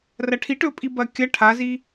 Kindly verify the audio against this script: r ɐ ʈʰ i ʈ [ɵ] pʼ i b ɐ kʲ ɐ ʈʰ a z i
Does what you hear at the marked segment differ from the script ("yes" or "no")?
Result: no